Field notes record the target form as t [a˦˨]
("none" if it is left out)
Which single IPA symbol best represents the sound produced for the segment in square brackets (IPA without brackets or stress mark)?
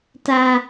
a˨